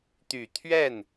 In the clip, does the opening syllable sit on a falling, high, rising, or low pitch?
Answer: low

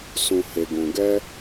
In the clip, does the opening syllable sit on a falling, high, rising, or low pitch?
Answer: low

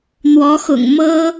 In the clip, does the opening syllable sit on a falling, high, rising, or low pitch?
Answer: rising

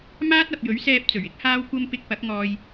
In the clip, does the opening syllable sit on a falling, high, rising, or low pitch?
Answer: high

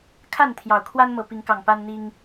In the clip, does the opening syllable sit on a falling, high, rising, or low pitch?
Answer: falling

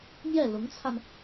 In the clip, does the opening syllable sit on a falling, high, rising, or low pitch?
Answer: falling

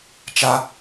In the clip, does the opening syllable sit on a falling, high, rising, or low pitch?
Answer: high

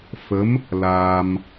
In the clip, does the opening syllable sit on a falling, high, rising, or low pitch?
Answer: rising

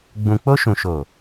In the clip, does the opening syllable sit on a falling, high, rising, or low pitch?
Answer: low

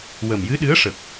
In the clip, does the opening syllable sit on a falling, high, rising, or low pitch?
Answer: low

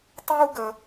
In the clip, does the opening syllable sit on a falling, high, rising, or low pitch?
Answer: high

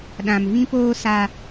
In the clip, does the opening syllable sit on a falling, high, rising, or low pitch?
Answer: low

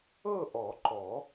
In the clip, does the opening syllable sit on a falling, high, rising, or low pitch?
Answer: falling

